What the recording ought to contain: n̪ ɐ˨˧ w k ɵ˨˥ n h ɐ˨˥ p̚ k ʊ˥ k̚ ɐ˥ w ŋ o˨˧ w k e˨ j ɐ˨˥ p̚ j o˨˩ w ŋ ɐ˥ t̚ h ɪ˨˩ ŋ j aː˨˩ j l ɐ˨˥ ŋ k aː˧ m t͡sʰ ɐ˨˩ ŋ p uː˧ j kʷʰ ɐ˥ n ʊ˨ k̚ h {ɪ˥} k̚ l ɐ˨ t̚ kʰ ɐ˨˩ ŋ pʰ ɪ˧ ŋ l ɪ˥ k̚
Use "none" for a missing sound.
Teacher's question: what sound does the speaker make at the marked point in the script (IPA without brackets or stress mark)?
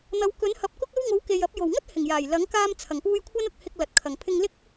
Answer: ɪ˧